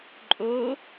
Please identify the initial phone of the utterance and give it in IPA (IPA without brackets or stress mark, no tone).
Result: ǃʼ